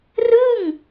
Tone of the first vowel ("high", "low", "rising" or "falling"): falling